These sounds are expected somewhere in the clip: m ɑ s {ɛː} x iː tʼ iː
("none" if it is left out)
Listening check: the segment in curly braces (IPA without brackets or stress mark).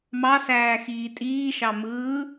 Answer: æː